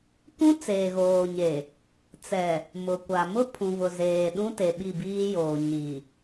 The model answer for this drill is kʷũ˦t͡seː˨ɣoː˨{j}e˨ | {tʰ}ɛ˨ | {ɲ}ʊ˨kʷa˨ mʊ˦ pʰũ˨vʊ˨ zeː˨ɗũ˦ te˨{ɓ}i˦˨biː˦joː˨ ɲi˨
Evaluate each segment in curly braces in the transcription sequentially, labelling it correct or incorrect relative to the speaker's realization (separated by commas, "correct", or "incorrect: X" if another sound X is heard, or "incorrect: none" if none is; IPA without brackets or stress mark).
incorrect: ɲ, incorrect: t͡s, incorrect: m, correct